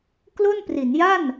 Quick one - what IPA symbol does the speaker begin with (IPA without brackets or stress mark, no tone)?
k